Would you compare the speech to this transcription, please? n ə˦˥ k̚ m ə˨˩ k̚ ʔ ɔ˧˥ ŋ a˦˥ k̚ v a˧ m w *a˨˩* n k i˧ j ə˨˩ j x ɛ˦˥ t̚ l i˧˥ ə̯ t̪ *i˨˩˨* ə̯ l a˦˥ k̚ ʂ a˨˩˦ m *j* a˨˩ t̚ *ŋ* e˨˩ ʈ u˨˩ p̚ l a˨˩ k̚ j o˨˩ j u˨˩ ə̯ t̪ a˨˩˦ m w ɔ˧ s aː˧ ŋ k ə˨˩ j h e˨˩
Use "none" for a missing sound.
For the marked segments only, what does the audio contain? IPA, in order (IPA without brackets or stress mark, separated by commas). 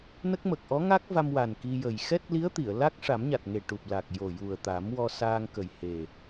a˨˩, i˨˩˨, ɲ, ŋ